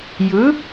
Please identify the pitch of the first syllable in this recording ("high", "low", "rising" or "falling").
rising